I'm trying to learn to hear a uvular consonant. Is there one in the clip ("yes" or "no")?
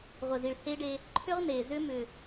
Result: yes